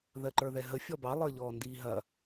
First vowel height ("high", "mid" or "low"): mid